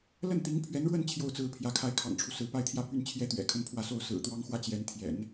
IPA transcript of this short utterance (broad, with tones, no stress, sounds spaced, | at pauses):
l ə˥˩ n t̪ i˧˥ ŋ pʰ ɥ ɛ˧˥ n ɻ w ə˥˧ n t͡ɕʰ j o˥˧ ʊ̯ t͡s ɹ̩˥˩ pʰ j ä˧˥ kʰ a˥ ɪ̯ kʰ ɑ̰˨˩ ŋ ʈ͡ʂʰ u˦ s ɹ̩˧˥ p a˥˧ ɪ̯ t̪ʰ j ä˥˧ p y˥˩ n t͡ɕʰ j ɛ˥ t̪ ɥ ɛ̰˨˩ kʰ ə˥˧ n pʰ w ä˥˧ s o˥˩ ʊ̯ s ɹ̩˨˩ t̪ w ɑ˥ ŋ x w ä˥ t͡ɕ j ɛ˧˥ n t̪ʰ j ɛ̰˨˩˦ n